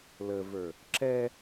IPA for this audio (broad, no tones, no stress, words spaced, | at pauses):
ləvə˞ | ǁɛ